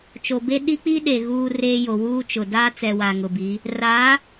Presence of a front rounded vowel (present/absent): absent